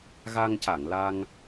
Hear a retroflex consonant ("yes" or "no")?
no